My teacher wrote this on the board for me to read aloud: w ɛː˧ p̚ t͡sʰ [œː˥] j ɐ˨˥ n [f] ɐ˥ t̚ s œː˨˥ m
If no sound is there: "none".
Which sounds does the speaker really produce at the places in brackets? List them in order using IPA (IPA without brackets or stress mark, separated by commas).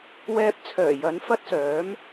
œː˨˩, f